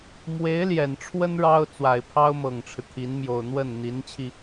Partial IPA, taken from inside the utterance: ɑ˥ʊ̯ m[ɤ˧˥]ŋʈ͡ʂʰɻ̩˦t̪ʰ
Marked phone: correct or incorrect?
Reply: incorrect